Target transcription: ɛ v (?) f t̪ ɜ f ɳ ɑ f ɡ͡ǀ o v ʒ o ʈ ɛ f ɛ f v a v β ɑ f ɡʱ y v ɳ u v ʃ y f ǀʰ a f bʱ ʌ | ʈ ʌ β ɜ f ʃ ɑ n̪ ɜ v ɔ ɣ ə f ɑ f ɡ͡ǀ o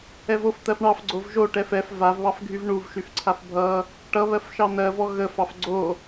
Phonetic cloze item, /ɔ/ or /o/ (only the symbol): o